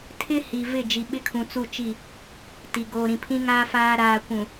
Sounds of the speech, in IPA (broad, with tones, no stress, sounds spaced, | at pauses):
tʰ ɪ˦ h i˨ v ɪ˦˨ d͡ʒ i˨ ɓ ɪ˦ kʰ ũ˨ t͡s u˦˨ t͡ʃ i˦˨ | t i˨ ɡ oː˨ ɾ ĩ˨ pʰ ĩ˦ ŋ aː˦ f aː˦ ɾ aː˨ kʷ ũ˨